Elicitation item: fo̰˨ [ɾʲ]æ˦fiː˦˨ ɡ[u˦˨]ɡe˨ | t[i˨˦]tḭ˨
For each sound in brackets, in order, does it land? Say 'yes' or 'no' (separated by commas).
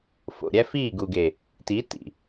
yes, no, yes